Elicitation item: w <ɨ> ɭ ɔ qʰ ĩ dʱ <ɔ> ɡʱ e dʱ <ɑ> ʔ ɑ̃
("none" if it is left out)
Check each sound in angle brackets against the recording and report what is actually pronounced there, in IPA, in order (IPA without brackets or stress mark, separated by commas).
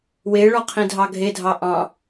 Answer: e, ɑ, ɑ